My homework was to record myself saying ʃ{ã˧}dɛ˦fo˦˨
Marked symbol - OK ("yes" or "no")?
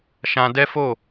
yes